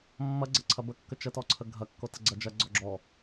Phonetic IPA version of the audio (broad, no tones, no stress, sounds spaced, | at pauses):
mː ɐ ɡ͡ǀ ɐ ǀʰ ɐ b ə kː ə t͡ʃ ə t ɔ ǀʰ ə ɡʱ ɐ kː o t ə ɡ͡ǀ ɐ d͡ʒ ɐ ɡ͡ǀ ɔ ɡ͡ǁ ɔ